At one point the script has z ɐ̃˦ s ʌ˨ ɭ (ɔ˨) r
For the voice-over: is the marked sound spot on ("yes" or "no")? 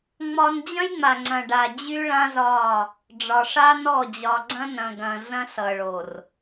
no